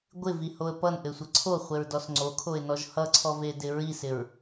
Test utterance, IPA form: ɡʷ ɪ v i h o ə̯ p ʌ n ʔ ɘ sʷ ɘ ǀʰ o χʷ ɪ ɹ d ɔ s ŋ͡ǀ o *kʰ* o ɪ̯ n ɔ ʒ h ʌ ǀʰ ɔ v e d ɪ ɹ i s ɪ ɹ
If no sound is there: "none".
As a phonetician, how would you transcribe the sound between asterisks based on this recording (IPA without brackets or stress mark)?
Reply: kʰ